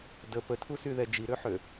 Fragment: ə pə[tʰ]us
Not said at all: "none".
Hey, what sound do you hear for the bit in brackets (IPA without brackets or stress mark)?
tʰ